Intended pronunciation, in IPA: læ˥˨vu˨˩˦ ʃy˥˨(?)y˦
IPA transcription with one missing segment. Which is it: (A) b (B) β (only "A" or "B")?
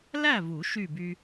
A